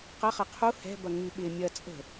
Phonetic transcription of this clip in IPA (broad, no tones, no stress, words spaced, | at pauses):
qɐχɐ qʰu hɛ̤bɐ ŋy ɓɪ mʲɐ t͡sʼə̤